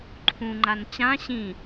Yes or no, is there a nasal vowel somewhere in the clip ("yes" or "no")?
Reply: yes